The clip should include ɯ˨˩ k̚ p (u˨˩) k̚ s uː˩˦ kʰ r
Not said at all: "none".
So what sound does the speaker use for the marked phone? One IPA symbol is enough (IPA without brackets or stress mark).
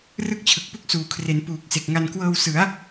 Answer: u˥˩